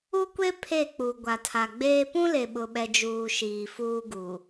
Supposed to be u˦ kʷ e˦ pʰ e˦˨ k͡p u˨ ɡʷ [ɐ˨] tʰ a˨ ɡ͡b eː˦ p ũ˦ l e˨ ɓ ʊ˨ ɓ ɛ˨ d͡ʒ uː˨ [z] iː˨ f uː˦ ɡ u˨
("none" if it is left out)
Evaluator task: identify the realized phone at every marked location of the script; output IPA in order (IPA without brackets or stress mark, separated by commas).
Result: a˨, ʃ